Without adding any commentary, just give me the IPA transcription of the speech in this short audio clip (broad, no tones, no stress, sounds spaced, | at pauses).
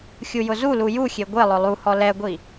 xʲ u j ʊ z u l u j u xʲ e ɡʷ e lˠ ʊ lˠ u h ɔ l ɛ ɡʷ i